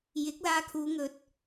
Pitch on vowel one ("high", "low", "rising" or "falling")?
rising